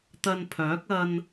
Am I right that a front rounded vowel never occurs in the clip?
no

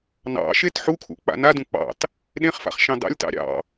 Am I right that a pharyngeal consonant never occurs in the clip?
no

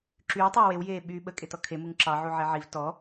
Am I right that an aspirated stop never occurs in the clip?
no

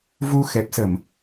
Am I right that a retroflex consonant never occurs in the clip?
yes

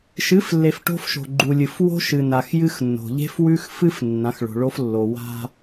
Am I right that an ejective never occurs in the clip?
yes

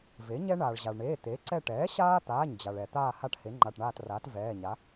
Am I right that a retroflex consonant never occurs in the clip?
no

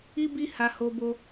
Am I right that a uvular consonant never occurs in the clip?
yes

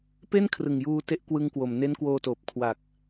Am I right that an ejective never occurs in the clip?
yes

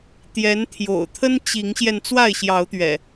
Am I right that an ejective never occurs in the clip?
yes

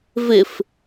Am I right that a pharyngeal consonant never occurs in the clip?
yes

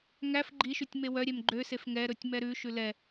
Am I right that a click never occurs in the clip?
no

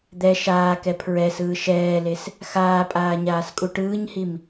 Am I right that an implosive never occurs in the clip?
yes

